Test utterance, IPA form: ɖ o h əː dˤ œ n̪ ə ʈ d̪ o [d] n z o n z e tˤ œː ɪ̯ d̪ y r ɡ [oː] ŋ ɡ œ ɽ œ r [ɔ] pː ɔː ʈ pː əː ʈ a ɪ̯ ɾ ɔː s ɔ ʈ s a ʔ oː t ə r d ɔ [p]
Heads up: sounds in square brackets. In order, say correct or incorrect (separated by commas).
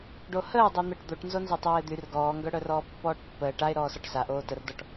incorrect, incorrect, incorrect, incorrect